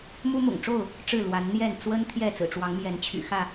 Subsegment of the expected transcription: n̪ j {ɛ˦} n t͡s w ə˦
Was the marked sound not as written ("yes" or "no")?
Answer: yes